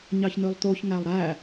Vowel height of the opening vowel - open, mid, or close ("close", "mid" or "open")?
open